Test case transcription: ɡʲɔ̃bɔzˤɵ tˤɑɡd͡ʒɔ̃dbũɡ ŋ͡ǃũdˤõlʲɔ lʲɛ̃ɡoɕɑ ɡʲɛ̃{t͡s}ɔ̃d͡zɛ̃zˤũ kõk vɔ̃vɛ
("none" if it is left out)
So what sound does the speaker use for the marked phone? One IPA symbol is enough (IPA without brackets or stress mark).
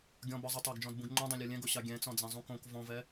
t͡s